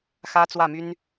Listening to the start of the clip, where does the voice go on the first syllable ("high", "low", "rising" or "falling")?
high